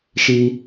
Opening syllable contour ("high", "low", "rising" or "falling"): low